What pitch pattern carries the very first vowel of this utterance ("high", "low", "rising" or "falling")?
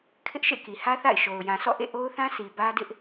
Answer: high